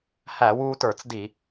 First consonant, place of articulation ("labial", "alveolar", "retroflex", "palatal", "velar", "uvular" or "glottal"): glottal